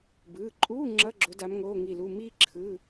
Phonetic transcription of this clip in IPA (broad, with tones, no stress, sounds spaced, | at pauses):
b ɯː˩˧˩ ǃʼ uː˧˥˧ ŋ͡ǁ ʌ˧˥˧ ɡ͡ǁ o˨˦ d a˨˦ m ŋ oː˧˥˧ ŋ i˦˨ l u˧˥˧ m iː˥ ǁʰ ɯ˧˥˧